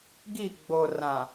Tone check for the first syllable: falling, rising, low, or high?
falling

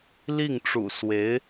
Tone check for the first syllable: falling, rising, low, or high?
falling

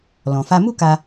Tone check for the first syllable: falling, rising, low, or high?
low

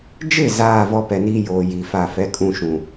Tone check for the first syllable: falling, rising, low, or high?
falling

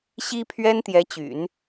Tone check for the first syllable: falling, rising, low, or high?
high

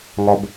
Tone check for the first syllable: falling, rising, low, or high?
low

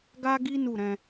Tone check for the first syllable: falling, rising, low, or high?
high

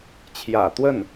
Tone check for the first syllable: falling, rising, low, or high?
low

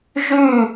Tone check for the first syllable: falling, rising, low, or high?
falling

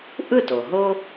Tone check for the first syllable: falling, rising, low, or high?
falling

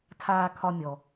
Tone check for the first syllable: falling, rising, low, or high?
high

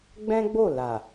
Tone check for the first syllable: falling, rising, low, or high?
high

